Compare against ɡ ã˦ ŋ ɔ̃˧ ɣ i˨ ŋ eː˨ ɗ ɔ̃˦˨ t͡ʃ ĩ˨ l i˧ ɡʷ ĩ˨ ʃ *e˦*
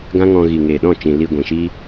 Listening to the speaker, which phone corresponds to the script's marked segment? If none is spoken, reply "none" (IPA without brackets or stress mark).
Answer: i˦